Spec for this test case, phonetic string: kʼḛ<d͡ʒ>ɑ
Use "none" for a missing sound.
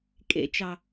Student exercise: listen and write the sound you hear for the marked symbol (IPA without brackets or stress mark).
t͡ʃ